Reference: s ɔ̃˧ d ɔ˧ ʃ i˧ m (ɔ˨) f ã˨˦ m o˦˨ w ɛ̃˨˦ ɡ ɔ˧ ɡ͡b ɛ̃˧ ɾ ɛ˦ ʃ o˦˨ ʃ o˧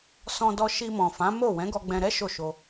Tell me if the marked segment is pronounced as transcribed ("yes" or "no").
no